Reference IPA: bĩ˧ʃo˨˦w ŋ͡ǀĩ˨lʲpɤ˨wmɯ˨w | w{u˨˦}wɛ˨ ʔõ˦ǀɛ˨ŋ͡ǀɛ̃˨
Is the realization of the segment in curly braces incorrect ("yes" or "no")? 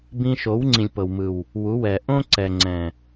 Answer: no